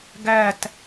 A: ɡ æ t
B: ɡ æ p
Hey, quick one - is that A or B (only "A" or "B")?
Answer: A